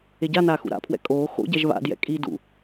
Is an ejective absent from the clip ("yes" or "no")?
no